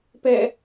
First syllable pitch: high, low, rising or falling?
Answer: falling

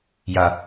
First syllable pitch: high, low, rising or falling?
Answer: low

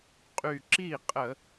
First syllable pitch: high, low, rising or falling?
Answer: low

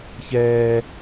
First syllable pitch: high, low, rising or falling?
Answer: high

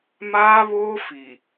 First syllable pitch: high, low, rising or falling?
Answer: high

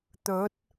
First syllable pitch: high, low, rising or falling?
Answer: rising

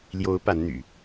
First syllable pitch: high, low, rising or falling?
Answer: rising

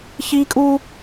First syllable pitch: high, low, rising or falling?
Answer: high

